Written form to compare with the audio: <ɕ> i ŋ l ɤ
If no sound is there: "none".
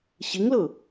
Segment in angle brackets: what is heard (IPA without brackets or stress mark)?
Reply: ɕ